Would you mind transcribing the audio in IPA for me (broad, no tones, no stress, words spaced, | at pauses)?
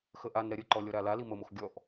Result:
xəʔanɾɛ ɾʲəǃɔ lʲɔɾalali məmox ɡʲɔʔ